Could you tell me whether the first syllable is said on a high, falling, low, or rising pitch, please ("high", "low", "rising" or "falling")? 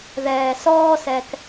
low